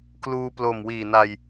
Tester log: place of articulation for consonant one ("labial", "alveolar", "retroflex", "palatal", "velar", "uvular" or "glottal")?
velar